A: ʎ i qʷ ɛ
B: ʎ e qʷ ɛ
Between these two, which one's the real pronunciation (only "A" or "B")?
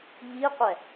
A